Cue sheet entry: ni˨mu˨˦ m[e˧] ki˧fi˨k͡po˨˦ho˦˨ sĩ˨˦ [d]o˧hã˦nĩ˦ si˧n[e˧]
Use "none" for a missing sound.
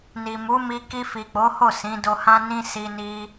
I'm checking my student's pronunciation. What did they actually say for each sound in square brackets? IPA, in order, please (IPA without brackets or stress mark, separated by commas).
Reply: i˧, d, i˧